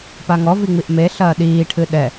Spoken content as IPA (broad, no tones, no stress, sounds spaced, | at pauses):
p a ŋ ɔ v i ŋ͡m i ʔ m e ɬ ɐː ɗ iː ʈʰ ɨ ɗ ɛ